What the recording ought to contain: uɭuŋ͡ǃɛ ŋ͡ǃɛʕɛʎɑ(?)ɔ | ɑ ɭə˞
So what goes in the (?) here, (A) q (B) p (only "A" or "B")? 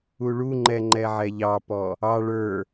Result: B